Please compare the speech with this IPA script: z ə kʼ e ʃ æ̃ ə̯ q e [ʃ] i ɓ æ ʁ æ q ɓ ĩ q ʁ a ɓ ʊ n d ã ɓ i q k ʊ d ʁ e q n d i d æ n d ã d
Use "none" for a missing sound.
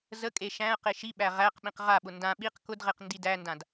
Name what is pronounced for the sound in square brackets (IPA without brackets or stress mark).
ʃ